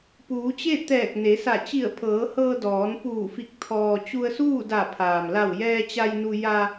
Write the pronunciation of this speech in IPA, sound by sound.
p uː˩˧ t͡ɕ e˥˨ t̪ ɛː˧˩ k̚ n e˩˧ s a˧˩ t͡ɕ i˧˩ ə̯ pʰ ɤː˩˧ h ɤː˧ d ɔː˩˧ n p uː˧˩ f i˧˩ k̚ t̪ʰ ɔː˩ t͡ɕ u˧ ə̯ s uː˥˨ d a˧˩ pʰ aː˩ m l a˧˩ w j ɛː˧ t͡ɕ a˧ j n u˧ j a˧

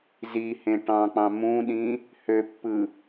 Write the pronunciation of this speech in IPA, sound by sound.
z i h ẽ ʈ ɑ̃ k͡p ɑ̃ m ũ ɗ ĩ | h ø pː ɯ

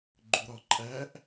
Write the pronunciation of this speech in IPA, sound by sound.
ɡ͡ǃ u ɾ ɒ ǃʼ æ ʔ

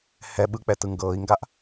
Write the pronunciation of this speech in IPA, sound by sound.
h ɛ ɓ ɯ k͡p ɛ t ɯ ŋ ɡ ɤː i̯ ŋ ɡ a ʔ

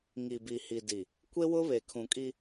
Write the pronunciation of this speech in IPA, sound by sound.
ŋ i˨ b i˨ h i˨ d i˨ | kʷ e˦ w ʊ˦ β e˨ kʰ ũ˨ kʼ i˦

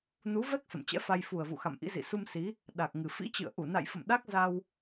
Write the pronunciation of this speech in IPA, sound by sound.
n u˨˦ v ɛ˦˥ k̚ s ə̰˧˨ m t͡ɕ ɛ̰˧˥ f a˧ j f u˨˩ ə̯ v ṵ˧˨ x a̰˧˨ m ʔ ḭ˧˥ z ḭ˧˨ s u˧ m s i˨˦ | ɗ a˨˩ k̚ ŋ ɨ˨˩ f ḭ˧˥ t͡ɕ ɨ̰˧˨ ə̯ ʔ u˧˩ n a̰˧˨ j f ə̰˧˨ m ɗ a˦˥ k̚ z a˧ w

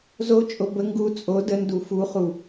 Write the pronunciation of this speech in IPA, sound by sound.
z o t͡ʃʼ o b ə ŋ ɡ u t͡sʼ o d ə n d u f u χ u

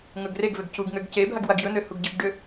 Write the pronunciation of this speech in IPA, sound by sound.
ŋ ɵ ɡ r e ɡ v ø ɡ c u ɡ ŋ ø ɡ c e bʱ a ɡ w a ɡ j ɵ n̪ ø h u ɡ ɟ ɨ ɡ ɖ ø

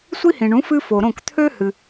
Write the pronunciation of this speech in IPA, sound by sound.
sʷ i˥ h ĩ˩ ɳ ũ˩˥ f ɨ˥ f o˩ ɾ õ˥˩ k t̪ʰ ø˥ h ɨ˩

